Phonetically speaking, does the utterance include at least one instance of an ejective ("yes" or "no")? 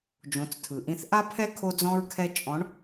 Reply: yes